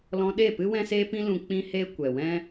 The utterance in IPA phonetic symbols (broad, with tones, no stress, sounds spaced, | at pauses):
l ɔ̃˧ ɗ e˦˨ p ɨ˦ w ɛ̃˦ s eː˦ p ĩ˦ l ũ˧ k͡p ĩ˧ h eː˧ kʷ ɛ˨ w ɛ̃˦